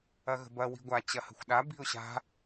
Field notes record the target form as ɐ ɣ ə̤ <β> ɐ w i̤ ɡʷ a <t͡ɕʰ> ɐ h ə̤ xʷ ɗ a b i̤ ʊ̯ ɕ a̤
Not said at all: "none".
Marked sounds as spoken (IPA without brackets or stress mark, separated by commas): b, t͡ɕ